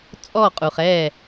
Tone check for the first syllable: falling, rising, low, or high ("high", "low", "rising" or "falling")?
falling